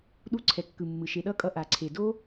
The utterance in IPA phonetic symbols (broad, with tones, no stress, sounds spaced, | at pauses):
ɗ u˧ ǀʰ ɛ˨ kː ɯ˨ mː ɯ˨ ʃ e˨ ɗ ʌ˦ kʼ ʌ˧ ʔ a˨ ǀʰ e˨ d o˦